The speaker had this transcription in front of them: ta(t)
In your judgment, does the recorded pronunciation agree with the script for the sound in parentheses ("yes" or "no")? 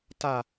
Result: no